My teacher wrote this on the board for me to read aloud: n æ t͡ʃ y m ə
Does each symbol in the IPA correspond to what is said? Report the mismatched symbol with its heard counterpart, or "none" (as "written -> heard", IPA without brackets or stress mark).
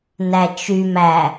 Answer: ə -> æ